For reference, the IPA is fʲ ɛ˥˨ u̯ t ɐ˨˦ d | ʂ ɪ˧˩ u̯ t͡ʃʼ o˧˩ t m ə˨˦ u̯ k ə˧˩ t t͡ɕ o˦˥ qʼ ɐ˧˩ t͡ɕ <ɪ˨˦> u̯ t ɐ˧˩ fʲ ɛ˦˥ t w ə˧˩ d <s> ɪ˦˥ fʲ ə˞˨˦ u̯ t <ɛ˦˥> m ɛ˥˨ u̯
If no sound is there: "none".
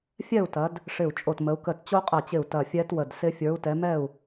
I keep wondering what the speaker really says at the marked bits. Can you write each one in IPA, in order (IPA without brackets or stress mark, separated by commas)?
ɪ˧˩, s, ɛ˨˦